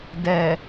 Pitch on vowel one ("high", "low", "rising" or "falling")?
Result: low